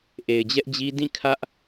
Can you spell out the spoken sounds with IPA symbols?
ʔ e˨ ɪ̯ d͡ʑ ɛ˦ ʔ d͡ʑ i˦ d ĩ˦˨ kʰ ä˦ ʔ

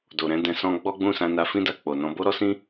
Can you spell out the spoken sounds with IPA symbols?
d o˨ ɾ ɛ̃˨˦ d ɛ̃˧ s ɔ̃˦ ɡ͡b ɔ˦ ɡ͡b ũ˦˨ s ã˧ n a˧ f ĩ˦ d a˧ k͡p o˨ n ɔ̃˧ b o˦ ɾ ɔ˦ s ĩ˦

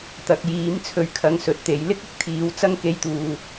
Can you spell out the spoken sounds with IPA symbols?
t̪ ɐ˨ k̚ j iː˨˧ m t͡sʰ ɵ˧ ɥ kʰ ɐ˨˧ ŋ s ɵ˨ t̚ t̪ e˨ j l ɪ˥ k̚ ɪ˨˥ k̚ t̪ʰ iː˨˧ w t͡s ɐ˥ ŋ k e˧ j t̪ uː˨

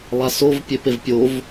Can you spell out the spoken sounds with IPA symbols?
lˠ a s o v pʲ e p e v pʲ o v

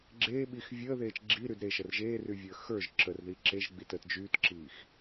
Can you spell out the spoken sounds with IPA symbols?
ɡ͡ǁ eː ɓ i x vʲ əː ð eː t͡ʃ ɡ͡ǁ i ɾ y d ɾ e ʃ ə r ʒ eː r y vʲ əː x ə˞ ʒ ǁ ə r ð i ǁ e ʒ ɡ͡b i t ə t d͡ʒ yː t ǁ iː x

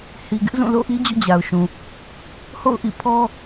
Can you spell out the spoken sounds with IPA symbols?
h i˨ ɡ ɪ˦ ʔ z ũ˦˨ l o̰˦˨ ʔ i˦ d͡ʑ o̰˦˨ d͡ʑ a˨ ʊ̯ ʃ ũ˨ | h o̰˦˨ ʊ̯ ʔ ḭ˦˨ pʰ ɔ˦

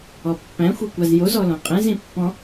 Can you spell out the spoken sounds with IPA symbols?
ɔ pː æ̃ xʷ i kʷ a z j o z ɔ l õ qʼ ẽ z ĩ pː ɔ̃

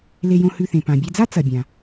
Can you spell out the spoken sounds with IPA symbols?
l e˧ j õ˧ h ʉ˧ θ ẽ˩ p ã˩ bʲ e˧ d͡z a˥ t͡s ɐ˩ bʲ ã˩

